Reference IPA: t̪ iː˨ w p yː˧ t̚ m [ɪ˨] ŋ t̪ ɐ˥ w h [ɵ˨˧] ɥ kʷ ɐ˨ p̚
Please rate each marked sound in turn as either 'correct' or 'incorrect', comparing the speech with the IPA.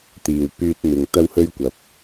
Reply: correct, incorrect

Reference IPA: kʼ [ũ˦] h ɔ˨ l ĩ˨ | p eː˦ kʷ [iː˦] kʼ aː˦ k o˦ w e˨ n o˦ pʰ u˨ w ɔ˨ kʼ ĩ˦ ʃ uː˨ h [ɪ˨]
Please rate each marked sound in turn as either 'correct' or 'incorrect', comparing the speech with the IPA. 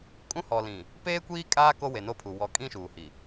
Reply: correct, correct, incorrect

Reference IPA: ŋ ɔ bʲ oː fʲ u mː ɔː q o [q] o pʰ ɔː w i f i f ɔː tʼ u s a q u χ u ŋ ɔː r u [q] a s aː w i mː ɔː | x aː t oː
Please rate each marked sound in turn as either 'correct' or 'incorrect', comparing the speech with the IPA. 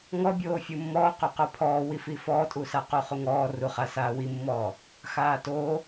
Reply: correct, incorrect

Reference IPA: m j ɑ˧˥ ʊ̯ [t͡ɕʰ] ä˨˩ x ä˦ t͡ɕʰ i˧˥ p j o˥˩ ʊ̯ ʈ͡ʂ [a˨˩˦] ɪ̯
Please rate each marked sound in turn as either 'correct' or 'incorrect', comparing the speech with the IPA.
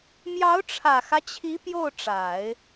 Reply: incorrect, correct

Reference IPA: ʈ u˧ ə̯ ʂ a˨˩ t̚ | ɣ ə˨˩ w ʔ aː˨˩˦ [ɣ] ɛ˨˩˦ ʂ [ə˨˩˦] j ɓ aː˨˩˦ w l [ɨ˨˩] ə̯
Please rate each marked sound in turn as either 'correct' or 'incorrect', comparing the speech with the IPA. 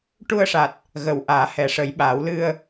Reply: incorrect, correct, incorrect

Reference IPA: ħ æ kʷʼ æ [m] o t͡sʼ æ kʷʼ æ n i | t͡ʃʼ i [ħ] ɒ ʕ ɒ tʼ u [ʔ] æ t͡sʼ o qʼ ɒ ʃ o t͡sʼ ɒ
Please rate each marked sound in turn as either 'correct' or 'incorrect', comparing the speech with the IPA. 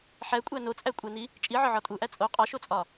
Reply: incorrect, incorrect, correct

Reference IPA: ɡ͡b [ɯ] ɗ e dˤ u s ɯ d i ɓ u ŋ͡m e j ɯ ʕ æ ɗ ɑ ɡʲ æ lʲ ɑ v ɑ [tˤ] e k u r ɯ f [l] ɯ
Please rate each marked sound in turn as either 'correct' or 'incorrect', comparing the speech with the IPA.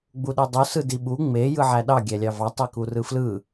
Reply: incorrect, correct, correct

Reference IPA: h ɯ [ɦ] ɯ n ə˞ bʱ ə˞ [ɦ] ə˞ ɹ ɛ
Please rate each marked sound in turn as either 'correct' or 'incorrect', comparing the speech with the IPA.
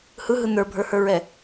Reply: correct, incorrect

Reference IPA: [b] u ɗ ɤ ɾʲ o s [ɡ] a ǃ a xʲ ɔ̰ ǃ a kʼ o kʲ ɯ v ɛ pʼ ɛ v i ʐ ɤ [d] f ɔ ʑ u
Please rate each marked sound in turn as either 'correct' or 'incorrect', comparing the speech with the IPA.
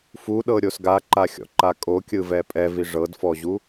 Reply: incorrect, correct, correct

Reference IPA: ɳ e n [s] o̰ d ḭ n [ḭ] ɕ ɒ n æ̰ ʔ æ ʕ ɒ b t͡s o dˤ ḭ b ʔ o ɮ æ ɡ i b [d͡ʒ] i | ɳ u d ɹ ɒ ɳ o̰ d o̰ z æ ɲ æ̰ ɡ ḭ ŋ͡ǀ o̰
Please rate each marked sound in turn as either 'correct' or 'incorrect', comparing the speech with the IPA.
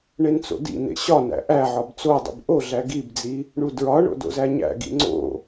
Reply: incorrect, incorrect, incorrect

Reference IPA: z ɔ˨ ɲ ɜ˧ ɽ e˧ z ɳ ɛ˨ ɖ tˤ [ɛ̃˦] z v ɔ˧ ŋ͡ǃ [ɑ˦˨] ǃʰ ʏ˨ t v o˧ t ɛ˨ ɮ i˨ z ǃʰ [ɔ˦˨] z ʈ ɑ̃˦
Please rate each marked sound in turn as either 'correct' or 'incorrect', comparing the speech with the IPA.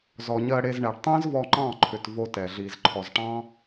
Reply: correct, incorrect, incorrect

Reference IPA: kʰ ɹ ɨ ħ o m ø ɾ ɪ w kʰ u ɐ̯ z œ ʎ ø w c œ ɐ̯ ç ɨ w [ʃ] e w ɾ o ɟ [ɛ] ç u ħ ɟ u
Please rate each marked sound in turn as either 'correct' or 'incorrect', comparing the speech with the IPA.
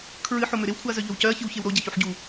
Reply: incorrect, correct

